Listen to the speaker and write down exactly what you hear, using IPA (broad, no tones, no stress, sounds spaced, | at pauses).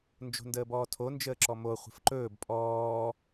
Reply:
n d͡ʒ o̤ n d əː b ɔː tʰ o n d͡ʒ əː ǁ ɔ m o χʷ ə̤ f ǃ ɵː b pʼ ɔː